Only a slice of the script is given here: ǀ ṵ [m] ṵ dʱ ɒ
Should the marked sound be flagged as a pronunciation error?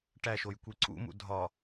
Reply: no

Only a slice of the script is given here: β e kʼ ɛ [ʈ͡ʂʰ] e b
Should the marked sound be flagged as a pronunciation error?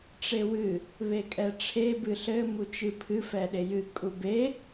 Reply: no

